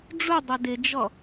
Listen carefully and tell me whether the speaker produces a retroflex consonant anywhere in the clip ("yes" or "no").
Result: yes